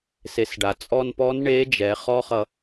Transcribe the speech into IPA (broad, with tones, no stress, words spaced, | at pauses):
se˩˧sɖa˩t͡sʼɔ˧npɔ˧˥n ɳe˧˥d͡ʒɛ˩˧ χɔ˥χʌ˧